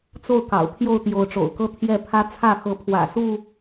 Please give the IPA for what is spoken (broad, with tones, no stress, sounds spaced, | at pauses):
t͡s o˥˨ ʊ̯ k ɑ̰˨˩ ʊ̯ pʰ j o˥˨ ʊ̯ t̪ j o˨˦ ʊ̯ ʈ͡ʂ o̰˨˩ ʊ̯ k ɤ˦ t̪ʰ j ɛ˥˨ pʰ ä˦ t͡sʰ ä˥˨ x ɤ˨˦ pʰ w ä̰˨˩ s u˥˨